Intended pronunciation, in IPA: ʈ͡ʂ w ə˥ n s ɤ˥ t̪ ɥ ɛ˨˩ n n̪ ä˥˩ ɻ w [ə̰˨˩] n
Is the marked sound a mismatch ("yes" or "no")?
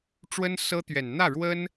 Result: yes